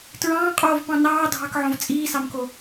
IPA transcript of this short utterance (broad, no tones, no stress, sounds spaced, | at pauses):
t ɹ ɑ̃ː qʼ oː v p ɑ̃ n ɑː dʱ ɑ k ʕ õ v t͡sʼ iː s ɑ m k o